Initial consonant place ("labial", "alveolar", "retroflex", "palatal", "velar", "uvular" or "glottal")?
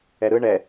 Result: alveolar